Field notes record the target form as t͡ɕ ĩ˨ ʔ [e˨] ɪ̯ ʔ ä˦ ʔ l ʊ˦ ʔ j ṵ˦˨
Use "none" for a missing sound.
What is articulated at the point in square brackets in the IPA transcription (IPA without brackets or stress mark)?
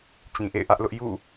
ḛ˦˨